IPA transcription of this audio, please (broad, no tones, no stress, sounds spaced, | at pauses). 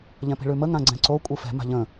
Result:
ʎ ɛ̃ p i̤ ɭ ʉ m ə ŋ ã ɡ͡ǀ ɛ̃ ǀ o kʷʼ ɯ f ɛ̤ m a̤ ʎ ə̃